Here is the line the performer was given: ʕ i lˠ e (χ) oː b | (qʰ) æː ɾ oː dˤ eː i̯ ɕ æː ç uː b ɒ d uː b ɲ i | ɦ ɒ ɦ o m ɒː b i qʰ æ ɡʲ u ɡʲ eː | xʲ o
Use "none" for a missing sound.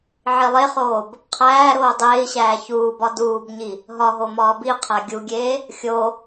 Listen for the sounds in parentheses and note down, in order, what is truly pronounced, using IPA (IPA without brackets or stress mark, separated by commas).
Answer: χ, qʰ